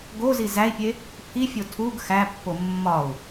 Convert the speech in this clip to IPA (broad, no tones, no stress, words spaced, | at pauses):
ɡozi zæi̯pʲe | pʰifʲo tʰuɡ xæpːo mːɒu̯